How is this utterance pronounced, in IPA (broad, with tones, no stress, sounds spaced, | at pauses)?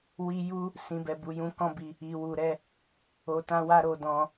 w i˧ j u˦ | s ĩ˧ b ɛ˧ b u˧ j ũ˦ k ɔ̃˦ b i˧ | i˨ w u˨ ɾ ɛ˧ | o˧ t ã˦ w a˦ ɾ o˧ d ɔ̃˧